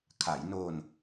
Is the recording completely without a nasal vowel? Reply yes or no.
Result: yes